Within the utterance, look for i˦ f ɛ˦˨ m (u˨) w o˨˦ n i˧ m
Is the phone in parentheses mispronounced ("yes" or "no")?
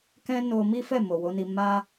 yes